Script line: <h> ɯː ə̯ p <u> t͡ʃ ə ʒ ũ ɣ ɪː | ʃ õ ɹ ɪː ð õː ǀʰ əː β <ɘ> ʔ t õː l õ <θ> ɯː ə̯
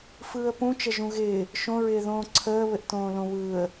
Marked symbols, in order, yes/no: no, no, yes, no

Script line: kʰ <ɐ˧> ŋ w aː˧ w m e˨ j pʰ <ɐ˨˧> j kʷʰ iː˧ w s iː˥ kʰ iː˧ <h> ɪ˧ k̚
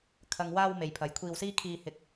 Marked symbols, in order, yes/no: no, yes, yes

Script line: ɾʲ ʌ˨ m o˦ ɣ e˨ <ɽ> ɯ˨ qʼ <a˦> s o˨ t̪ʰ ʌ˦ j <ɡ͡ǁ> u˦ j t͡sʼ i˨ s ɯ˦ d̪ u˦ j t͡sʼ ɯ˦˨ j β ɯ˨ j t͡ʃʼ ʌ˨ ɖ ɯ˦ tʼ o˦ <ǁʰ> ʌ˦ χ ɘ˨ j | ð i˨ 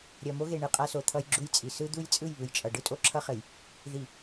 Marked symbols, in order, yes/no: no, yes, yes, yes

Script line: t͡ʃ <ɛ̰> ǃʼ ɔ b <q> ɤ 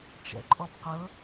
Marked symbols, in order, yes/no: yes, yes

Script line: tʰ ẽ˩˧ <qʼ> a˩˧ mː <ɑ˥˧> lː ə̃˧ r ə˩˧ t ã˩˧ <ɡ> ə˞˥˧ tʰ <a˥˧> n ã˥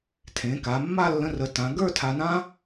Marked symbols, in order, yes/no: no, no, yes, no

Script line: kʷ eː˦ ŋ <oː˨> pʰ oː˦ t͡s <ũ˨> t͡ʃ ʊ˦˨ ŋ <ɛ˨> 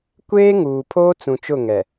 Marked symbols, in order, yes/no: no, yes, yes

